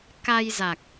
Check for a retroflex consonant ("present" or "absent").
absent